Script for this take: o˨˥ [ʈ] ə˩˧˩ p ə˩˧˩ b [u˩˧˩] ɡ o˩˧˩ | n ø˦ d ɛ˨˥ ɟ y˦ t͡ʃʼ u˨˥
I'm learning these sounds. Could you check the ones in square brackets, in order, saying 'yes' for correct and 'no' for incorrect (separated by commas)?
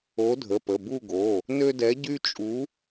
no, no